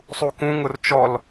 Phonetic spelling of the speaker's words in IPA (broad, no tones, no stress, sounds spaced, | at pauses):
sˤ u k ũ ŋ ʊ r t͡ʃ ɔ l